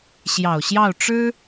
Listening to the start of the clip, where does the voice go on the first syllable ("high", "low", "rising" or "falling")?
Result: low